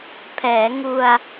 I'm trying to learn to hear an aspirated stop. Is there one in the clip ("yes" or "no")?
yes